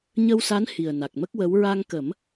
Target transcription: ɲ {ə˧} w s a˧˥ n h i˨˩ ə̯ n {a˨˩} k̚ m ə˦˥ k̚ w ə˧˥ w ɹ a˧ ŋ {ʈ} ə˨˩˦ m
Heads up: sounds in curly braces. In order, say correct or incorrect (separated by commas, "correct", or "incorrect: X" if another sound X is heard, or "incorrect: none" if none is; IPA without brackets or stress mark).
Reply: correct, correct, incorrect: k